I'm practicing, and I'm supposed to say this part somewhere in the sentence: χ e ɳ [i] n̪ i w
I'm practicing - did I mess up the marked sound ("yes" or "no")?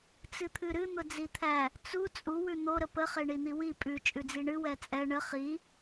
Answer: no